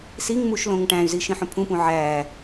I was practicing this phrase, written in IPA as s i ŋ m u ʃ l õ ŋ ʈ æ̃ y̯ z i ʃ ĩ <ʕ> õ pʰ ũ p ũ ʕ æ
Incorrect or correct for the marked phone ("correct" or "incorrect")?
incorrect